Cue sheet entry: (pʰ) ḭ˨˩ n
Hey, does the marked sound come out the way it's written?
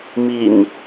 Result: no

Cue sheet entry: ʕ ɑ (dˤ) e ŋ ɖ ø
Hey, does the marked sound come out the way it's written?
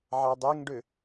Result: yes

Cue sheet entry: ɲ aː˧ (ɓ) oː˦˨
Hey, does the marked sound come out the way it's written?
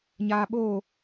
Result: yes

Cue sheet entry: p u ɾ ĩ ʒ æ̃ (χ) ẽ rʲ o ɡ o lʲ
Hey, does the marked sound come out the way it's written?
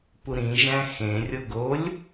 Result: no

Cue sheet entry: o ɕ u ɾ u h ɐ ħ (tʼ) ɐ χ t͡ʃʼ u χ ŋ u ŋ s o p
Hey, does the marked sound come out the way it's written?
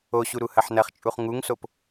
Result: no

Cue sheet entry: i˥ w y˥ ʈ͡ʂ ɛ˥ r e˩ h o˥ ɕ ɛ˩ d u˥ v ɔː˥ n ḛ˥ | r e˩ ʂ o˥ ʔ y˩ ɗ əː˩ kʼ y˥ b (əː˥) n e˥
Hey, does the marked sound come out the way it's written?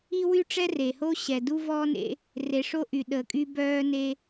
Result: no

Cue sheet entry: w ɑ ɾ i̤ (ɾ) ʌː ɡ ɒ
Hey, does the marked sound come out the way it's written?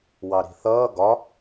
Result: no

